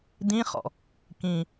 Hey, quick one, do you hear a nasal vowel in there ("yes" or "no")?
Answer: yes